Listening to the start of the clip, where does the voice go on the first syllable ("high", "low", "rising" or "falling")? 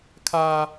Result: high